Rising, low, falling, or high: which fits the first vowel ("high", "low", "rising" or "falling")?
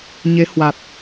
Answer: rising